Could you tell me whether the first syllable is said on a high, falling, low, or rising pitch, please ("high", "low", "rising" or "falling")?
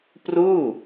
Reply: falling